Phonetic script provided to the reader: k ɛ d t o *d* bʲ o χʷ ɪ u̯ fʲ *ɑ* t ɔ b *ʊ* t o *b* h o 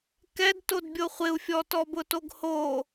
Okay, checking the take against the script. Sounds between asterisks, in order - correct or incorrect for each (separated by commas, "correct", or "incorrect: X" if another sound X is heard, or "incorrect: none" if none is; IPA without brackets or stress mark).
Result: correct, incorrect: ɔ, correct, incorrect: ɡ